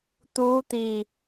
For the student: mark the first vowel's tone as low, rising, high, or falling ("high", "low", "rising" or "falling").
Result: rising